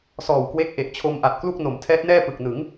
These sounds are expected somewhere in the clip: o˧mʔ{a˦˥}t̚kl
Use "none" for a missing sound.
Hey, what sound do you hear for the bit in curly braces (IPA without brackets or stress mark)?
a˨˩